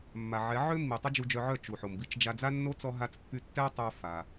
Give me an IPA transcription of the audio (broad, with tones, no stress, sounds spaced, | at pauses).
mː a˨ ʕ ɛ˨˦ ʕ ø˦ mː i˨ tˤ o˦ d͡ʒ u˧ d͡ʒ œ˧ ʕ œ˦˨ t͡ʃ u˨ ħ o˨ m b i˧ t͡ʃ d͡ʒ a˧ d͡z a˦ nː o˦ t͡s ɔ˦ ɦ a˦ t͡s pː y˦ tː ɛ˦ tˤ œ˦ f a˧